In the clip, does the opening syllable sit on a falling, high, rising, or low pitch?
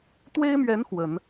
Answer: high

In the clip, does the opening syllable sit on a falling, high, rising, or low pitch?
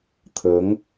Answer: rising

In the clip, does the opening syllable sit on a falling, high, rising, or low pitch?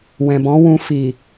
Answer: low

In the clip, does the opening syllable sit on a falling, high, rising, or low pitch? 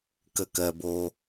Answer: low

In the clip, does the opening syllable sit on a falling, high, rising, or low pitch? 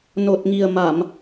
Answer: low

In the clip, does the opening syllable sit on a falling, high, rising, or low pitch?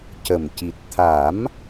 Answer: low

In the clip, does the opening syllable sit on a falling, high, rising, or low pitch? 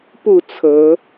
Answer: falling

